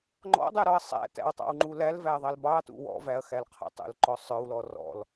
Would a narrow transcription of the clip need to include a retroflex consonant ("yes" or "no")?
no